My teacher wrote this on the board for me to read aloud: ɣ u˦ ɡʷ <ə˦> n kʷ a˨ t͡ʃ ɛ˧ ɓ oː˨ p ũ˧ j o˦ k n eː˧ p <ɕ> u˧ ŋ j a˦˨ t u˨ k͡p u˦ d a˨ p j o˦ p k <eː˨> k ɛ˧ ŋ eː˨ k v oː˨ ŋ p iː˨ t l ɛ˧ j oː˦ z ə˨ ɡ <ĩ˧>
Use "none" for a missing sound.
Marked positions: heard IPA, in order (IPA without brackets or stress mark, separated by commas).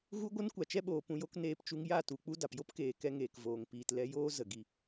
ə˦, t͡ʃ, eː˨, i˧